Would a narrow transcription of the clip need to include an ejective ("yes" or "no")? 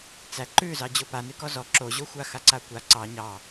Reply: no